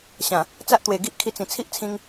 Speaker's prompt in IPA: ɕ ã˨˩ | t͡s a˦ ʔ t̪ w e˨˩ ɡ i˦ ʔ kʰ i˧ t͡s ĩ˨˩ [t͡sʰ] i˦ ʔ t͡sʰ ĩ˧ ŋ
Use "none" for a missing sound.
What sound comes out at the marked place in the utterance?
t͡sʰ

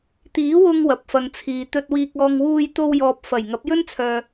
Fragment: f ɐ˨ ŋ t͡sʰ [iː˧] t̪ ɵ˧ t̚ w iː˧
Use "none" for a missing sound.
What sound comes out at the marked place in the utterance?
iː˨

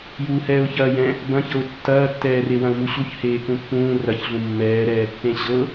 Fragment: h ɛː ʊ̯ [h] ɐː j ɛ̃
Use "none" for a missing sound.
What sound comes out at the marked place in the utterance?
ç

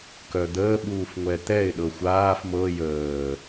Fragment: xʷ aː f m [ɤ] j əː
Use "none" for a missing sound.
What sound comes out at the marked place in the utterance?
ɤ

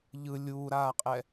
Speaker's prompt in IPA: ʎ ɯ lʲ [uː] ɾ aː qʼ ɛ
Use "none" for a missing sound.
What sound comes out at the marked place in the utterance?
uː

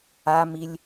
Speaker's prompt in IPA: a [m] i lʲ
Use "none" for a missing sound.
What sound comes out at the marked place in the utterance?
m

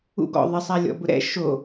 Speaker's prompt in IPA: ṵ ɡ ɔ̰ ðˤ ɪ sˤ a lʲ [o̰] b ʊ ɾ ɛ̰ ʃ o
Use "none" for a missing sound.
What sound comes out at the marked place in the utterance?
ɔ̰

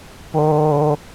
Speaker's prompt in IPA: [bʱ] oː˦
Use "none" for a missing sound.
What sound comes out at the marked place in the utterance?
p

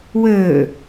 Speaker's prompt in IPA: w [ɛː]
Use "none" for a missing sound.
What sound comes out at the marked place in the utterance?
əː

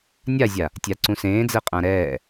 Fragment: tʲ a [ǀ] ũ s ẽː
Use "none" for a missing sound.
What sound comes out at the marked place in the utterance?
ǀ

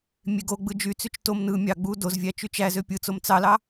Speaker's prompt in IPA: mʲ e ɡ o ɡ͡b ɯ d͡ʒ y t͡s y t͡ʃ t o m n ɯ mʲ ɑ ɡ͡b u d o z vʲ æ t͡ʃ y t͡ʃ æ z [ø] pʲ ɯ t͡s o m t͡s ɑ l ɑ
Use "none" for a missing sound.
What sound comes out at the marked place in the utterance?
ø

